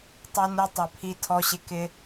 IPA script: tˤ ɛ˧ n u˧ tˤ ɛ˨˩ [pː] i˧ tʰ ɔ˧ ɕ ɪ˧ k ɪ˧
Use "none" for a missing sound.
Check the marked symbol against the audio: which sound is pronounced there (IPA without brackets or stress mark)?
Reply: pʰ